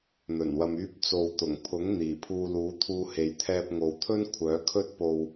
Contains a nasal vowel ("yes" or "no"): no